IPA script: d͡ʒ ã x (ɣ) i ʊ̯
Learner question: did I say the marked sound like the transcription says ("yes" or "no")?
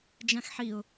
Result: no